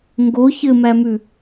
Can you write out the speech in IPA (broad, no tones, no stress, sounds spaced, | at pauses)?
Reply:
ŋ ɡ o ç ɘ m æ m ʉ